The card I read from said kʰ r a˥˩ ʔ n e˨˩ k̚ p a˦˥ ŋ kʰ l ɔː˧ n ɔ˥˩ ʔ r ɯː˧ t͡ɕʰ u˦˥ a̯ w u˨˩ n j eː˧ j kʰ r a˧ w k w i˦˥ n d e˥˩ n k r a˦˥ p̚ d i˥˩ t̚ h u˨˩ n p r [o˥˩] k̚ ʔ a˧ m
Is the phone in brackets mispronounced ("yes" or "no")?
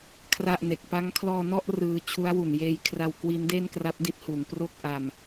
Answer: no